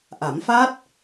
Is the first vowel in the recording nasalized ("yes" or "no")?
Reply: no